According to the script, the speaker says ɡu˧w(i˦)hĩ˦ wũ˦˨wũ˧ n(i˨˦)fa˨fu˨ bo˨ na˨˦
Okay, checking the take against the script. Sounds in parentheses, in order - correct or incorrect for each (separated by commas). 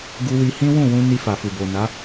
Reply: incorrect, incorrect